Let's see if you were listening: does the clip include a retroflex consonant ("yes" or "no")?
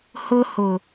no